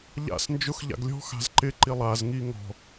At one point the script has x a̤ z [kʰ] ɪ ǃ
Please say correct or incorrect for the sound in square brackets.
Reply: incorrect